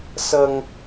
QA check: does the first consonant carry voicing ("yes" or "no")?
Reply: no